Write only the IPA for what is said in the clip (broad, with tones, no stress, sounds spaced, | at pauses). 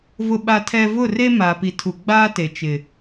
v ʊ˦ ɓ a˦ tʰ ɛ˦ v ʊ˦˨ r e˦ m aː˨ p i˨ tʰ u˨ ɡ͡b aː˦ t e˨ t͡ʃ ɪ˨